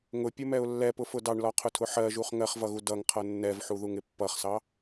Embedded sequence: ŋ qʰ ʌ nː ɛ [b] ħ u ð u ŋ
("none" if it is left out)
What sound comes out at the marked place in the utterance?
v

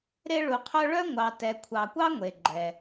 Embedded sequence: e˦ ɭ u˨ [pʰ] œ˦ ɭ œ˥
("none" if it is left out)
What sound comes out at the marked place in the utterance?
qʰ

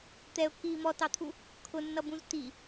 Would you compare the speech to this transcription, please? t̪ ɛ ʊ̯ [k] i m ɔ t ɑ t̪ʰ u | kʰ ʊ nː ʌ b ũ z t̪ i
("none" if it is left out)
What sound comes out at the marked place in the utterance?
k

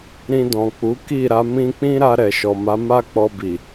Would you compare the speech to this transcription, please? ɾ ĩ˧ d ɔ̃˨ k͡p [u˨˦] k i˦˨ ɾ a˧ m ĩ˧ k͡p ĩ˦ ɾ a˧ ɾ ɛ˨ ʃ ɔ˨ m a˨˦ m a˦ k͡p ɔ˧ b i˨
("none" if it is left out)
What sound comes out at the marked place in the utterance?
u˨˦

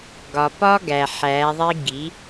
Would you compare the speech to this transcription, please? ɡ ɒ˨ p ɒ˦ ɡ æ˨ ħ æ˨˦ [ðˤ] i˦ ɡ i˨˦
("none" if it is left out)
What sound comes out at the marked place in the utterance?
ðˤ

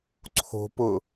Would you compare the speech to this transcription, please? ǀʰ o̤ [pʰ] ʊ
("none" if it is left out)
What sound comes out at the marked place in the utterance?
p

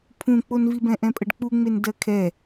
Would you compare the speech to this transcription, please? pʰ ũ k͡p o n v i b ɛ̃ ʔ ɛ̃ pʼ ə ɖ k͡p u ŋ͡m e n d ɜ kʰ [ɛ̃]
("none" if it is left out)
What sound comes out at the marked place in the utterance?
ɛ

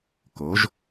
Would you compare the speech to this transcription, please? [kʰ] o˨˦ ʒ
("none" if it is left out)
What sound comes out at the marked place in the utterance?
k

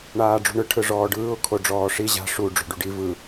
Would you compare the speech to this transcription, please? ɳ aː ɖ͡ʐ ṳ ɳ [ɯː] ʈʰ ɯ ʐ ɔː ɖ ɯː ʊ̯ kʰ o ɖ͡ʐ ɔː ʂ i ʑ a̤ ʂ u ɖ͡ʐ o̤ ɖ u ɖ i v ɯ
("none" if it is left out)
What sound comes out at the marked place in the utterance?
ɯ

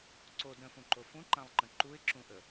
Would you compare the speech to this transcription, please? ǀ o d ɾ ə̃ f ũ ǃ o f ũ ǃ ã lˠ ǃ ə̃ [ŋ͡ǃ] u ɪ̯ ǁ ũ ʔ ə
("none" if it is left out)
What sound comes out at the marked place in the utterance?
ǃ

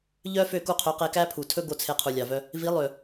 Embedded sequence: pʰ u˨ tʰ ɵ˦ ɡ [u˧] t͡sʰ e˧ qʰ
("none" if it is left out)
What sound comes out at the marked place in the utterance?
o˧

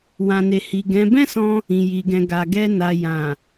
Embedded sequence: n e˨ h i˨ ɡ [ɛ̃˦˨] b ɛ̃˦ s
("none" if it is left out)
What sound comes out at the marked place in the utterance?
ɛ̃˨˦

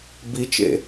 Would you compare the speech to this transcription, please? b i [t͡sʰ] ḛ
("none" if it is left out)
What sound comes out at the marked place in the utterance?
t͡ʃ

